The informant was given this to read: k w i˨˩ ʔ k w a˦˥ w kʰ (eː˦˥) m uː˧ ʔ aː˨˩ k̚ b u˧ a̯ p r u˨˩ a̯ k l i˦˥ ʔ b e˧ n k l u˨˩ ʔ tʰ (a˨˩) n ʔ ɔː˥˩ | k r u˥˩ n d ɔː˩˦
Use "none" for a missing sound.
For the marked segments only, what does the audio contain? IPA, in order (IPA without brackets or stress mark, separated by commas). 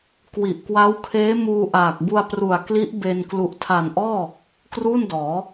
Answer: eː˦˥, a˨˩